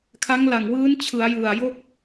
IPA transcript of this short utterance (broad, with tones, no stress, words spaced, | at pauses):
kʰa˦˥ŋ la˨˩ŋwɯː˦˥n t͡ɕʰɯ˩˦a̯jɯ˨˩a̯jo˥˩k̚